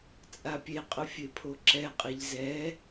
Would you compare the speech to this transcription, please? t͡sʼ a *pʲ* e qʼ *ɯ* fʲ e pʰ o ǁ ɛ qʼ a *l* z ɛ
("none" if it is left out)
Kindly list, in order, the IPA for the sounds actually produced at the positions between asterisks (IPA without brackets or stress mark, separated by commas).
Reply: pʲ, ʊ, ʎ